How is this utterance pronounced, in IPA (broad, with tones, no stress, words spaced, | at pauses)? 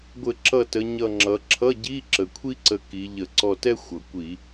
ɡʷɘ˧˩˧ ǁʌ˧˩tə˩˧ ɲʌ˧˩ŋ͡ǁʌ˩˧ ǁʰʌ˧˥˧ɟi˧˥˧ ǁə˩kʷʰi˥ǀə˧˩ ki˩˧ʎə˧˩˧ ǀɔ˧˩tɛ˥ xʷʌ˩ kʷi˧˩˧